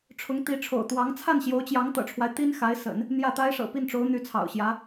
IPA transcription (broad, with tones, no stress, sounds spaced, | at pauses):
ʈ͡ʂʰ ʊ˧˥ ŋ t̪ i˧˥ ʈ͡ʂʰ o̰˨˩ ʊ̯ t̪ w ɑ˧˥ ŋ t͡sʰ a˥˩ n ɕ j o˧˥ ʊ̯ t͡ɕ j ɑ˧˥ ŋ t̪ ɤ̰˨˩ ʈ͡ʂʰ w a˦ ɪ̯ t̪ i˥ n x a˧˥ ɪ̯ s ə̰˨˩˦ n | n̪ j ä˥˩ t̪ a˥ ɪ̯ ʂ ɤ̰˨˩ p i˥˩ n ʈ͡ʂ o˧˥ ʊ̯ n̪ y˧˥ t͡sʰ ɑ̰˨˩ ʊ̯ ɕ j ä˧˥